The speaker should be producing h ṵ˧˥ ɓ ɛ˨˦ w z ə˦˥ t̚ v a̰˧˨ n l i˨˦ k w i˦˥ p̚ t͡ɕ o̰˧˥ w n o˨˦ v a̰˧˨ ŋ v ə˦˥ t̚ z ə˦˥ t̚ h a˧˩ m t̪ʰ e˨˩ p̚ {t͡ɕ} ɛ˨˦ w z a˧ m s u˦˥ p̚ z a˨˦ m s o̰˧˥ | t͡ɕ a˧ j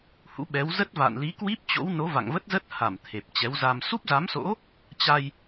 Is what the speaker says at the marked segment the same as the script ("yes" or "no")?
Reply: yes